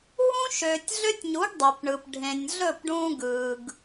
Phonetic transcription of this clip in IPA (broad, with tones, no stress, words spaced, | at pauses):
ɦũ˦ ʃøː˨tʲɮø˦tʲɲu˨˦ɡ dˤø˨pɳɯ˨p ɖʱẽ˨nʲ ɮɵ˦˨pɖũː˧ ɡɯː˨ɡ